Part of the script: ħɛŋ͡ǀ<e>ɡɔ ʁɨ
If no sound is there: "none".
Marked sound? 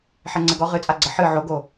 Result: ɛ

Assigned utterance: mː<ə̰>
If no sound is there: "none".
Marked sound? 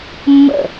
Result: ə̰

